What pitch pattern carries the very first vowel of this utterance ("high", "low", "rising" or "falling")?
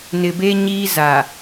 low